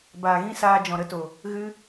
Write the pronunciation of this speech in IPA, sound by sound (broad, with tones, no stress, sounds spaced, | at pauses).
b aː˨ ɣ ĩ˦ s aː˧ d͡ʒ ɔ̃˨ ɾ ə˦ t o˨ | ɣ ɨ˧